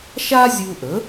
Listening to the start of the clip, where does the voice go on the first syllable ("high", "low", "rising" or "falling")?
high